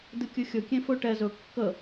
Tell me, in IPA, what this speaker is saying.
d ɨ kʲ ɨ xʲ ɵ kʲ ẽ f ɵ ʈ ɛ z ɵ kː ə

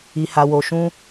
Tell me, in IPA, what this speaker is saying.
i˧ h a˧ w o˧ ʃ ũ˦

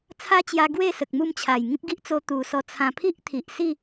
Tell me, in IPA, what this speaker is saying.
t͡sʰ a˦ t͡ɕ j a˧ ɡ w e˥˧ s ə˨ k̚ m u˥˧ m t͡ɕʰ a˨˩ j ŋ ĩ˦ p̚ ɡ i˦ ʔ t͡s o˧ t̪ u˨˩ s ɔ˧ t͡sʰ ã˨˩ pʰ i˦ ʔ t̪ʰ i˨ ʔ s i˥˧

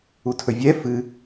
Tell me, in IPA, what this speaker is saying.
u tʰ ɵ vʲ ɛ f ɨ

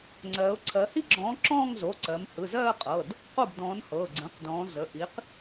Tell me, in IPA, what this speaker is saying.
ŋ͡ǀ ɜː˩˧ ʊ̯ ǀʰ ɜ˩˧ h i˥˩ ɡ͡ǁ ɔ̃ː˨˥ ǁ ɔ̃ː˥˧ ŋ z o˩˧˩ ǀ ɜ˩˧ m h ɯ˩˧˩ z ɜː˥˧ qʼ ɤː˩˧˩ d | q o˥˩ b d ɔ̃ː˨˥ n h ɤː˩˧˩ ɡ͡ǀ ə̃ː˩˧˩ q d ɔ̃ː˩˧ z ə˩˧˩ ʔ i˨˥ q

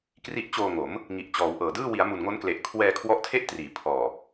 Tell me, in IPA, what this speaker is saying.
k r i˦˥ ʔ t͡ɕ oː˧ ŋ o˩˦ m | ŋ i˨˩ ʔ t͡ɕ ɔː˩˦ w ʔ ɤː˨˩ d ɯː˥˩ w i˩˦ a̯ m u˨˩ n ŋ o˦˥ n k l e˨˩ ʔ kʰ w ɛː˧ kʰ w ɔ˦˥ ʔ tʰ e˥˩ ʔ t r iː˩˦ pʰ ɔː˨˩

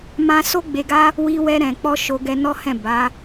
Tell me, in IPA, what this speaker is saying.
m ã˧ s o˦ ɡ͡b e˧ ɡ a˦ | w i˧ w ɛ˧ ɾ ɛ̃˨ k͡p ɔ˧ ʃ o˧ ɡ ɛ˧ n ɔ˦ h ɛ̃˦˨ b a˨˦

